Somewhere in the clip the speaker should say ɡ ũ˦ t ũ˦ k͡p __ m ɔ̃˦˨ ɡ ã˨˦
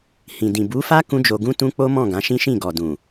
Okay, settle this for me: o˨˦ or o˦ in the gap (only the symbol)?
o˦